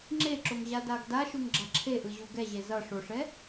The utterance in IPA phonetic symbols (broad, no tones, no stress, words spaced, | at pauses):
ŋ͡ǁeǁoŋʑadaɡ daʃuŋɡ͡ǁa ǁʰeʔɯʑu ɡɛʑe zʌ ʂoʂɛ